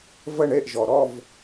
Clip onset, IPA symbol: v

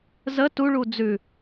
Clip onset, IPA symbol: z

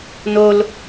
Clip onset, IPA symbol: n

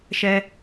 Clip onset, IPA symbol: ʃ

